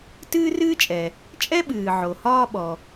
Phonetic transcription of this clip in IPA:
t ɨː˥ r ɨː˥ t͡ʃʼ ɛ˩ | t͡ʃʼ ɛ˥ ɓ ɨː˩ ʕ o˩ h ɒː˦ ɓ ɔ˩

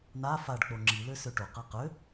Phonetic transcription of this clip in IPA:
n a f a ɖ k͡p o ŋ͡ǁ i l ø s ø ʈ o q ɤ q ø

